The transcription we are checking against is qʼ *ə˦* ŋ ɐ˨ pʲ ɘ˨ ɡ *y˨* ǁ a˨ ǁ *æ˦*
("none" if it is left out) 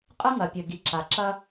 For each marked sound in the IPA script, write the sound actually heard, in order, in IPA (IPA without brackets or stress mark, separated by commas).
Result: ɨ˦, i˨, ɐ˦